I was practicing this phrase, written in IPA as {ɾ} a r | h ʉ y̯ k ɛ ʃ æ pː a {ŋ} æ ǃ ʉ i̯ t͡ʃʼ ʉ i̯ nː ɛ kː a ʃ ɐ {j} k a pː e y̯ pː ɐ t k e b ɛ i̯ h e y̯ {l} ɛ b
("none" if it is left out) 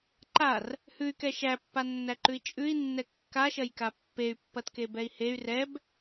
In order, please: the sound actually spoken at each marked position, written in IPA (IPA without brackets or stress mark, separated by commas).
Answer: ǃ, nː, j, r